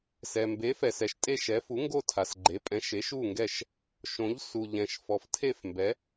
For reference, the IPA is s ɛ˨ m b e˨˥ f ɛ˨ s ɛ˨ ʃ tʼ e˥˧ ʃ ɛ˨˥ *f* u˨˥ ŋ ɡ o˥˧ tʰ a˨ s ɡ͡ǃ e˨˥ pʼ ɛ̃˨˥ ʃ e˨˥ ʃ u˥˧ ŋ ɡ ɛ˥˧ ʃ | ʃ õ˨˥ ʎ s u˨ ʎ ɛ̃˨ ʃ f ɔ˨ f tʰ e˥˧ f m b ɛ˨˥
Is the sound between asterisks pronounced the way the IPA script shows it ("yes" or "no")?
yes